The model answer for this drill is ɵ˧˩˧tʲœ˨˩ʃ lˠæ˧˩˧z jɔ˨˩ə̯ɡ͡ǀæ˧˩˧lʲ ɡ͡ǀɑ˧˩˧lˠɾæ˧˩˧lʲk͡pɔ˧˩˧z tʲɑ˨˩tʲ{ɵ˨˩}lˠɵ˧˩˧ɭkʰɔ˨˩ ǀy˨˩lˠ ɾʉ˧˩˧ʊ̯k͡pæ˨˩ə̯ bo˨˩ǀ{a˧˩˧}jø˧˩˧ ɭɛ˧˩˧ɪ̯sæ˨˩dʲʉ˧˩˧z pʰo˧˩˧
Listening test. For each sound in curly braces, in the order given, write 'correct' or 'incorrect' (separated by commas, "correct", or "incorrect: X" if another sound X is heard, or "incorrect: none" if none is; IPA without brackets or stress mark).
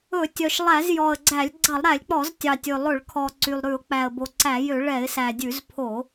correct, incorrect: æ˧˩˧